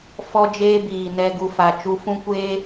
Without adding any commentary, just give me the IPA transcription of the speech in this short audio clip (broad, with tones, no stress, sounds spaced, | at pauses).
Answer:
f ɔ˦ d͡ʒ eː˦ b iː˨ n ɛ˧ ɡ u˨ f a˨ t͡ʃ u˧ f ũ˦ kʷ eː˦